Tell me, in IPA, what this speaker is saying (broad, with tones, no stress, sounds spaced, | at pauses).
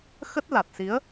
x ə˦˥ t̚ l a˨˩ t̚ s i˨˦ ə̯